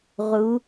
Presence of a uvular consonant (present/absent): present